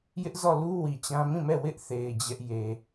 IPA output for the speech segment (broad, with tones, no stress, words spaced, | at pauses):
jɪ˦ʔzɔ˦˨lu˦ wi˨t͡ɕã˦ mĩ˦˨mɛ˦˨ wɪ˦ʔθe˨ɪ̯ d͡ʑɛ˦ʔje˨